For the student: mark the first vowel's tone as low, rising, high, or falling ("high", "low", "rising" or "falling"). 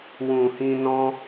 low